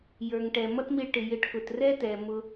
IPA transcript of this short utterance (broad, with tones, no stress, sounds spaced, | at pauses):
j ə˞˨ ŋ ʈ ɛ˨ m ʌ˦ t m i˧ ɭ ʈ ɪ˨ j ɪ˦ ʈ k ʊ˧ t r ɛ˦ t ɛ˨ m ʊ˦